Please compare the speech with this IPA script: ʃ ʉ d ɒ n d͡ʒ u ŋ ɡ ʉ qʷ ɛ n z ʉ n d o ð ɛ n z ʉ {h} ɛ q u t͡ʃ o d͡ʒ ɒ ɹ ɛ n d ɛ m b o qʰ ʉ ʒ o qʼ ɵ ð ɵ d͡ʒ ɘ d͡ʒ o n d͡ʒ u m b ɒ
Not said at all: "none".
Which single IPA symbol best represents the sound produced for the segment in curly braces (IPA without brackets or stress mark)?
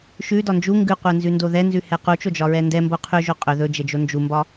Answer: h